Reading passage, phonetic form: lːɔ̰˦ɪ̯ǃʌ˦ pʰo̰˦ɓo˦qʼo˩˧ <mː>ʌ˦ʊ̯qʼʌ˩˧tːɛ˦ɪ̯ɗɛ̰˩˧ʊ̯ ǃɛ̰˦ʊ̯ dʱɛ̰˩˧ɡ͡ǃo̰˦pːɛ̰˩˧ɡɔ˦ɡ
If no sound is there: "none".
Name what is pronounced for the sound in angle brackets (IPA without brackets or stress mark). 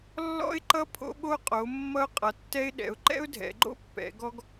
mː